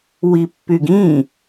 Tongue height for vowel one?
high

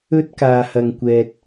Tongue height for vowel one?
mid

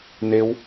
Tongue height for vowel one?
mid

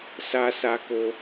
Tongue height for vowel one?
low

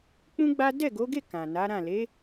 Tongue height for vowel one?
high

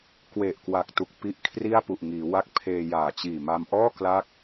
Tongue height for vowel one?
mid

